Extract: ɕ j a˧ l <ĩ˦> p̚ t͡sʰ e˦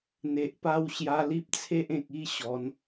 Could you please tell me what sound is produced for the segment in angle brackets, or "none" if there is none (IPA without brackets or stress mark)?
i˦